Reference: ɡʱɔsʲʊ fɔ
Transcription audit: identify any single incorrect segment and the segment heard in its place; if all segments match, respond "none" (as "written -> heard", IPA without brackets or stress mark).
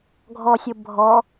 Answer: f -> bʱ